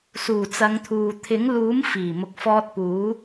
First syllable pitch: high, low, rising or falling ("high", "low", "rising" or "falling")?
low